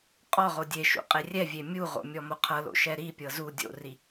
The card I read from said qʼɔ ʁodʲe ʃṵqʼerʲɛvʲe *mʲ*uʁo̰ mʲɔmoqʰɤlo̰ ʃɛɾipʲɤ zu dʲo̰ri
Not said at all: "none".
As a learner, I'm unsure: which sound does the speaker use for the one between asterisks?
mʲ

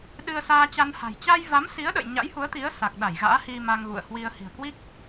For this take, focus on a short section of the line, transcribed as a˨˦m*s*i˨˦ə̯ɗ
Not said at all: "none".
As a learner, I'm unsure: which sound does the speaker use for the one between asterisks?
s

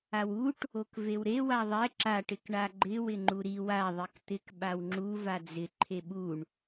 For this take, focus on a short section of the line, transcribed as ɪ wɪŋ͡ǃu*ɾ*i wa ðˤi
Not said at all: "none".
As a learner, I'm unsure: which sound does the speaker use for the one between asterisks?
ɾ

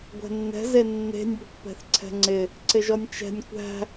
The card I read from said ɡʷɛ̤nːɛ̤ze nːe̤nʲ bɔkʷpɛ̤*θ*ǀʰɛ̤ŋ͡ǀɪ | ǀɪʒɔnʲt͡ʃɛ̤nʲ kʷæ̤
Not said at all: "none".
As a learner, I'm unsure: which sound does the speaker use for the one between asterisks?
θ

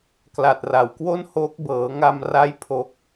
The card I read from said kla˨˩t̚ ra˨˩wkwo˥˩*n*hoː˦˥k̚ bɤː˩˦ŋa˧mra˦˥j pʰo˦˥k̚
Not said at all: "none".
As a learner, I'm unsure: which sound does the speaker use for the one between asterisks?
n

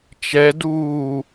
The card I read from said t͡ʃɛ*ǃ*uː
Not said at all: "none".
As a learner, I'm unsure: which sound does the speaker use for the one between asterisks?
d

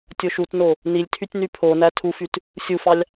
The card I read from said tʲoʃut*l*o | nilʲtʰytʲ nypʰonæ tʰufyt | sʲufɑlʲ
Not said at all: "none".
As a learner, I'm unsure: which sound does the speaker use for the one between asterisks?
n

